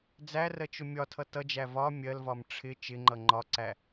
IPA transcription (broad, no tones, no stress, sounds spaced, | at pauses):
d͡z æ r ɜ t͡ʃ ʊ mʲ ɒ tʰ ʌ t ʌ d͡ʒ æ v ɒ mʲ ɜ l v ɒ m ʈ͡ʂʰ ɪ t͡ʃ ɪ ŋ͡ǃ ʌ ŋ͡ǃ ɒ ǀ æ